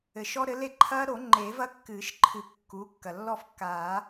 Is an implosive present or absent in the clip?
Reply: absent